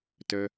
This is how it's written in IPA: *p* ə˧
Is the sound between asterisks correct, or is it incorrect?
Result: incorrect